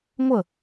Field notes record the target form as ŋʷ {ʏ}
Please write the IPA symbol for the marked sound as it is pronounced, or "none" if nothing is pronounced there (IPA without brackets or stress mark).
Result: ə